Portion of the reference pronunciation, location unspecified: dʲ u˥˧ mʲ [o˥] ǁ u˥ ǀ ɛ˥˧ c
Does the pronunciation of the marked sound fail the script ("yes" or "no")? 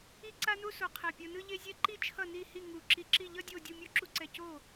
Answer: yes